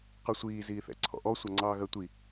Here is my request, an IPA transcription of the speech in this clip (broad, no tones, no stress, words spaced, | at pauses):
qʌsʷiː ziːθɛ̰ǀʰɔ̰ʔɔ sʷʌŋ͡ǀɑːɣɜtʷi